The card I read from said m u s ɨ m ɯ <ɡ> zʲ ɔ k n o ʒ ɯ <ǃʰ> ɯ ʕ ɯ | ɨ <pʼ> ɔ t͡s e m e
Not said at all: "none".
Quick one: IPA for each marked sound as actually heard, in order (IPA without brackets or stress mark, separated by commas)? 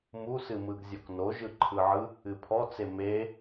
ɡ, ǃʰ, pʰ